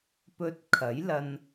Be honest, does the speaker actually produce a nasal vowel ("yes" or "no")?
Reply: no